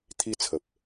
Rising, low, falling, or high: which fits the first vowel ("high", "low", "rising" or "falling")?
falling